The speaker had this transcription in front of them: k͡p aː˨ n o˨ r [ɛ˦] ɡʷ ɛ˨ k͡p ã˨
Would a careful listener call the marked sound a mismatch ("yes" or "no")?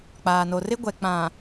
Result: yes